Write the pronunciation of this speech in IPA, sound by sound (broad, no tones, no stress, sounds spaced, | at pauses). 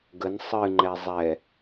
ɡ ə n sˤ ɨ ŋ͡ǃ ɛ zˤ ɛ